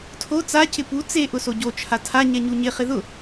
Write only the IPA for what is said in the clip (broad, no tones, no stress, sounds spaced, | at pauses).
tʰ o t͡s a c ɪ p u t͡s e ʔ ʊ s o ɟ o t͡ʃʰ a tʰ a ɲ ɛ ɲ u ɲ ɪ χ ɪ ð ʊ